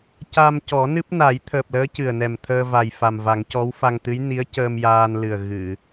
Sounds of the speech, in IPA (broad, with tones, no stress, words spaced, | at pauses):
ca˧m cɔ˨˩˦nɨ˦˥p̚na˨˩˦j t̪ʰəː˨˩p̚ləː˧˥ cɨ˨˩ə̯nɛ˨˩m t̪ʰəː˧va˨˩jfa˨˩mva˨˩˦ŋ cɔ˧˥wfa˧ŋt̪ɨ˧˥j ni˧˥ə̯cəː˧mjaː˧nlɨ˨˩ə̯ ɣɨ˨˩˨